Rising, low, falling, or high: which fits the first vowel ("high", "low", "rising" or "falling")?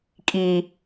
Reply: low